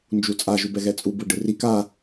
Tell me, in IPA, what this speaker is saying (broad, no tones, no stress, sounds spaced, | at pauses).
n d͡ʒ u t͡sʼ a ʒ u b ɛ ɣ ɛ t͡sʼ u b ɯ ɖ ɯ r i k a